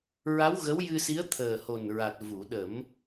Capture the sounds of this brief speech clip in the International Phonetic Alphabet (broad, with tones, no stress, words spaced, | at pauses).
ɹa˧˥wɣə˧˥wjɨ˧si˧˥ə̯ t̪ʰəː˨˩ho˨˩nɹa˨˩t̚ vu˨˩˨ɗə˨˩˦m